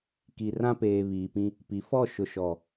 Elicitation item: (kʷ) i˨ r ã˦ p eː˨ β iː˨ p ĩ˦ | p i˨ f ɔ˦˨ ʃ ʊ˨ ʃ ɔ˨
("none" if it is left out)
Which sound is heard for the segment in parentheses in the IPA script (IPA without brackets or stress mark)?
k